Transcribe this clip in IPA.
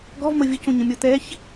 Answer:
ɡ ɔ v m ə vʲ ə c õ ɲ ə̃ mʲ ɔ t̪ ɛ ç

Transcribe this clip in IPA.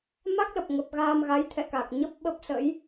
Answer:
m a˦˥ k̚ l ə˨˩ p̚ ŋ ə˨˩ p̚ ɣ aː˧ m ɣ a˨˦ j t̪ʰ ɛ̰˧˨ k a˨˩ k̚ ɲ ə˦˥ p̚ ɓ ə˦˥ p̚ s ə̰˧˥ j

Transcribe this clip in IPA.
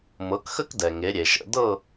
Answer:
m ɤ˨˦ k x ə˥ k d ɛ˨ ŋ e˨˦ ɾʲ e˨ ʃ ə̰˥˧ d ɤ˥˧

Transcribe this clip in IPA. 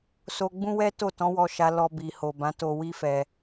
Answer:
s o˧ ɡ͡b ũ˦ w ɛ˦ t o˦˨ t ɔ̃˨˦ w ɔ˧ ʃ a˧ l ɔ˧ b i˨ h o˨ b ã˨˦ t o˧ w i˦ f ɛ˧

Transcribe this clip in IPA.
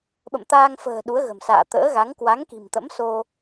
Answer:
ɓ ə̰˧˨ m t̪ aː˧ ŋ f ə̤ː˨˩ ɗ u˨˦ ə̯ ɣ ə̤˨˩ m s a̰ː˧˨ t̪ ə̰ː˧˥ ɣ a˨˦ ŋ k w a˨˦ ŋ k i̤˨˩ m t̪ ə̰˧˥ m s o˧

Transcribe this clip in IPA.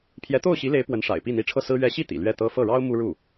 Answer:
pʰ j ɛ˧˥ t̪ o˥˩ ʊ̯ ɕ i˧˥ l e˧˥ ɪ̯ p w ə˧˥ n ʂ a̰˨˩ ɪ̯ p i˥˩ n̪ i˧˥ ʈ͡ʂʰ ɤ˥˩ s ɹ̩˥ ɥ ɛ˧˥ ɕ i˥˩ t̪ ḭ˨˩ l ɥ ɛ˥˩ t̪ ɤ˥ f ɤ˥˩ ɻ ɑ˥ ʊ̯ m u˥ ɻ u˥˩

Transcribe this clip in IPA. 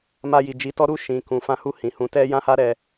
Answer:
m a˧ j i˨ d͡ʒ i˨˦ t ɔ˦ ɾ u˦˨ ʃ ĩ˨ k ũ˨ f ã˧ h u˧ h ĩ˨ h ũ˨ t ɛ˧ j ã˦ h a˦ ɾ ɛ˧

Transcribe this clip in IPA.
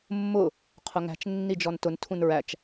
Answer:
mː ʊ | qʰ ʊ ŋ æ̤ t͡ʃ nː i d͡ʒ ɔ n t ʊ n tʰ ũ n ɹ æ t͡ʃ

